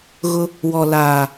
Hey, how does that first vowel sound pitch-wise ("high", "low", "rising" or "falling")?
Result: high